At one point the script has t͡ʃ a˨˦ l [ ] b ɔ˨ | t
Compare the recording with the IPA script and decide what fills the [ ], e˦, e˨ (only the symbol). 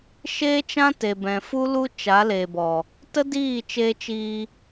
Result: e˨